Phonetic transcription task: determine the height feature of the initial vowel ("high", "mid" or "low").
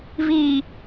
high